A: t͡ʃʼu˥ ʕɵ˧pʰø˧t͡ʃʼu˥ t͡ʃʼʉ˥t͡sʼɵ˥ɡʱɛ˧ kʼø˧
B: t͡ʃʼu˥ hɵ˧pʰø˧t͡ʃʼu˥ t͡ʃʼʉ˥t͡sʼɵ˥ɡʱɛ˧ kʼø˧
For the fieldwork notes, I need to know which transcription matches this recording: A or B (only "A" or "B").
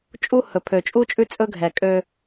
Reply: B